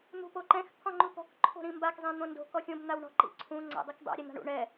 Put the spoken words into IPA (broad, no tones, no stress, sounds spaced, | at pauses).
n̪ ṳ p o ǃ ɛ̃ x t̪ʰ ɔ̃ ŋ͡ǃ u t̪ ɔ̤ k ǃʰ o̤ ɾ ĩ m b a k zˤ ɛ̃ n̪ õ n d o̤ k ɔ xʲ õ b n̪ a w ɳ ɔ̤ ǃ ḭ ǀʰ ũ ŋ͡ǀ a̰ dˤ i k dˤ a̰ ɾʲ ɛ n̪ a̤ ɳ ṵ ɳ ɛ